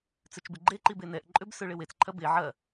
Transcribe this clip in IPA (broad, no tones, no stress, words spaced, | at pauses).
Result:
t͡søt͡ʃbɪɡ͡ǃeǃi benɛʔǃʼøb søɭɪwet͡sǃʰɐ be ʕɐ